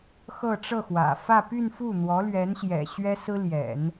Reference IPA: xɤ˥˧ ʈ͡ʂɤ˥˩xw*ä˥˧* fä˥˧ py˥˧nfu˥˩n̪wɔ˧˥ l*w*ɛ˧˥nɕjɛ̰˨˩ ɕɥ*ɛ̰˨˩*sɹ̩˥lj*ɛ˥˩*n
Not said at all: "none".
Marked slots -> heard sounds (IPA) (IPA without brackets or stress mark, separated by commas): ä̰˨˩, ɥ, ɛ˥, ɛ̰˨˩˦